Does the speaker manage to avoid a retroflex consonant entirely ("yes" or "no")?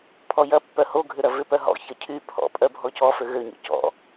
yes